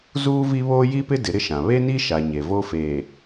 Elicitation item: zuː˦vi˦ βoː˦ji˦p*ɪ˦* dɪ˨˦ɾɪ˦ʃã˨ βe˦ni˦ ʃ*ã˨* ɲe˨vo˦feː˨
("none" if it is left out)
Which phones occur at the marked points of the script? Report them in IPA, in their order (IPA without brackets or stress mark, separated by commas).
ɪ˦, a˨